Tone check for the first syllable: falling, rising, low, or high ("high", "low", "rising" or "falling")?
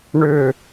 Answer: falling